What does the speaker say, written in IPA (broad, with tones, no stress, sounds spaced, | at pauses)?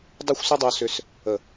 dˤ u˥˧ xʷ s ʏ˥ dˤ o˧ s ʏ˧ s | ə˧˩